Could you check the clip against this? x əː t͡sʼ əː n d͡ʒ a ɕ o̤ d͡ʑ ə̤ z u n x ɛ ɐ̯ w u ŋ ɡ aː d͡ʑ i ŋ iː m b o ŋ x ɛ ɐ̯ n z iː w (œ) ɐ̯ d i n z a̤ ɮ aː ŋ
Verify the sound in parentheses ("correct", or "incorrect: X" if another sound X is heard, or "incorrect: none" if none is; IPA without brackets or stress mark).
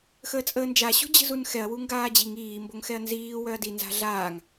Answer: correct